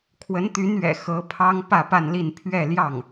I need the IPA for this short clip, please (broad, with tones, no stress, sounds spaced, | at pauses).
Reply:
kʰ w ə˧˥ n t̪ y˧˥ n ɥ ɛ̰˨˩ x ɤ˧˥ pʰ ɑ˥ ŋ p ä˥˧ p a˥˧ n l i˥˧ n pʰ ɥ ɛ˥˧ l j ɑ˥˩ ŋ